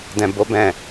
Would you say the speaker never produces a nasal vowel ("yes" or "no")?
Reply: no